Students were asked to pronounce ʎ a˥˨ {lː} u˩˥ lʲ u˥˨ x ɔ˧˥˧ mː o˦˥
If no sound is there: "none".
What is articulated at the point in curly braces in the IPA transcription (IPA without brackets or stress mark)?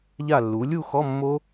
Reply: lː